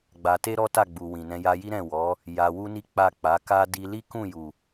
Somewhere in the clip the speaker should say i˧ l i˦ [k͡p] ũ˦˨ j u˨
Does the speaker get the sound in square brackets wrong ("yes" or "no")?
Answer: yes